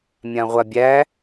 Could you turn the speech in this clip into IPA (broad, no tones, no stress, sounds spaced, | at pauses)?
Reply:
mʲ ã ʁʷ a bʲ æ